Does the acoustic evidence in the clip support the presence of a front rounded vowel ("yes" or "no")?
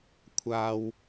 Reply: no